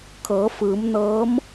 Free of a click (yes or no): yes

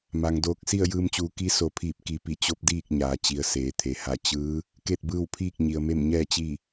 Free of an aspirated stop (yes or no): no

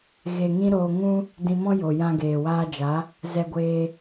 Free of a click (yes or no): yes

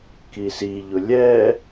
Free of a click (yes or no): yes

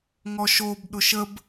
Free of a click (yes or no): yes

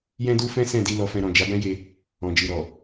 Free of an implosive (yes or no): yes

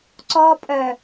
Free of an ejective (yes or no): no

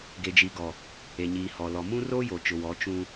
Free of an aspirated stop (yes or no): yes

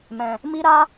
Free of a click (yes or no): yes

